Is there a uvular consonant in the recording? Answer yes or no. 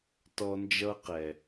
yes